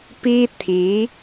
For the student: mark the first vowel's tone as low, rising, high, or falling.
high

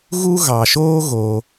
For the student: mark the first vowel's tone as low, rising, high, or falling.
high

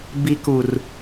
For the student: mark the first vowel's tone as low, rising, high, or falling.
low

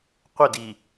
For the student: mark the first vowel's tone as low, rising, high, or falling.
falling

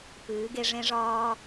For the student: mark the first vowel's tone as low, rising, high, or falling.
rising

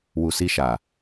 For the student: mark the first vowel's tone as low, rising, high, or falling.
low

